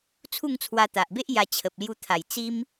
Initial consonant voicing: voiceless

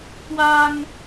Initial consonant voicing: voiceless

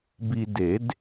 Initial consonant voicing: voiced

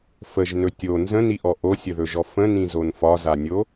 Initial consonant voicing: voiceless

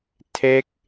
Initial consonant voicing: voiceless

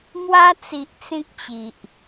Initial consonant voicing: voiced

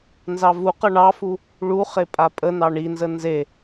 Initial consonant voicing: voiced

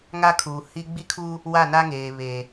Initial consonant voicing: voiced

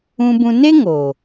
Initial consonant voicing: voiced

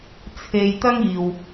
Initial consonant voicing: voiceless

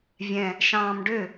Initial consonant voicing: voiced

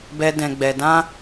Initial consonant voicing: voiced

